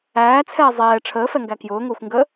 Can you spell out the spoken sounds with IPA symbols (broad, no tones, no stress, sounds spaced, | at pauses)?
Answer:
æː t͡sʰ ɛː zˤ ɛː ʈ͡ʂʰ əː f ɛ ŋ ɡ æ k j ʊː ŋ ʊː xʷ ŋ ɡ əː